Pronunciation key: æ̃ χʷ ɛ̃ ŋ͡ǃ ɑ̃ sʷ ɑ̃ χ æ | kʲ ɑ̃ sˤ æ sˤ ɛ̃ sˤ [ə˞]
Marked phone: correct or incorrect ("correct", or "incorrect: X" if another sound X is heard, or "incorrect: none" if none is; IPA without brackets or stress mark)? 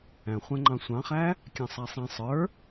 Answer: correct